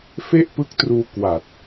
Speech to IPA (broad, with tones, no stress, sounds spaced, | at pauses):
f e˥˩ ʔ p ɯ˦˥ k̚ t r uː˧ k w a˨˩ t̚